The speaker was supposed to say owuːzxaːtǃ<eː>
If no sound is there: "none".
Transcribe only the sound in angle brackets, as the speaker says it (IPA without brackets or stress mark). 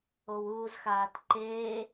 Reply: eː